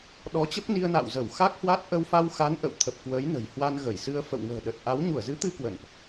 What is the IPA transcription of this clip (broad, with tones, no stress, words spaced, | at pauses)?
ɗɔ˨˦t͡ɕə˦˥p̚ni˧ə̯na̰˧˨w zə˧˩wxa˦˥k̚hwa˦˥t̚ ʔə˧wfa˧wxa˨˦n ʔə̰˧˨w t̪ʰə˨˩p̚kwəː˨˦j nə̤˨˩j hwa˧nɣə˧˩jsɨ˧ə̯ fə̰˧˨wŋə̤ː˨˩ɗə˨˩t̚ ʔa˨˦w ɲu˧˩ə̯zɨ˨˦t̪ɨ˧ kwə̰˧˨nʔ